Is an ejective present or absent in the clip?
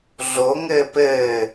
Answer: absent